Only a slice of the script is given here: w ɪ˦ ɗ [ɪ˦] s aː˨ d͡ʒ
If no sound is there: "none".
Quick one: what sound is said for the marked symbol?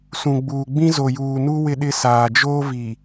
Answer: ɪ˦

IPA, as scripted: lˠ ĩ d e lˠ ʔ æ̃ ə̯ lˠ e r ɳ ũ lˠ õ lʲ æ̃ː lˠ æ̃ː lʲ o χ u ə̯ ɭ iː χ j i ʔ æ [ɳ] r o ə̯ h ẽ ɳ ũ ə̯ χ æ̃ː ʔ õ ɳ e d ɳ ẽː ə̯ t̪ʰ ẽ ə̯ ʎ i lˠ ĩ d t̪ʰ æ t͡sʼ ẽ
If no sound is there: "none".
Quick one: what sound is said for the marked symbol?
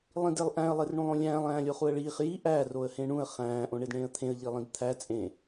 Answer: none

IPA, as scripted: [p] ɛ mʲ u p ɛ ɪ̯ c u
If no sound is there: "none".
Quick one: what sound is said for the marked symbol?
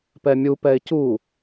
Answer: p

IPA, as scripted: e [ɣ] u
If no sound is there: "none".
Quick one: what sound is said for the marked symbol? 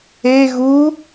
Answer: ɣ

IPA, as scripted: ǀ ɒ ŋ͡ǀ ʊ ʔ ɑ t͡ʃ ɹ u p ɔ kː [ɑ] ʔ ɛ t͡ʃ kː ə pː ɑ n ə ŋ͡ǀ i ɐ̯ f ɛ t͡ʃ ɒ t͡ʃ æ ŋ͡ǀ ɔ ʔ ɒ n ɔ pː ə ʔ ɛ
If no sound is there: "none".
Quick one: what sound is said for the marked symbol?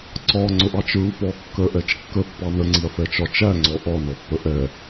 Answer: ə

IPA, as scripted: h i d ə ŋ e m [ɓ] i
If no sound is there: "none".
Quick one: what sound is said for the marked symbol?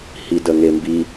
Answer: b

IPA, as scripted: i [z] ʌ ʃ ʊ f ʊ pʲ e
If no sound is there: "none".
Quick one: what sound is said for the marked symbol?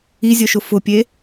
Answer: zʲ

